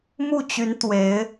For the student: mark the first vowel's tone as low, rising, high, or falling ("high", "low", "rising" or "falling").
falling